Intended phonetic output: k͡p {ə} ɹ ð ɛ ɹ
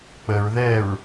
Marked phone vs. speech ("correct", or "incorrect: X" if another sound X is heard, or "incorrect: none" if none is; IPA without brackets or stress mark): correct